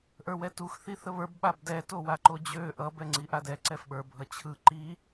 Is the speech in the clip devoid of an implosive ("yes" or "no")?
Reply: no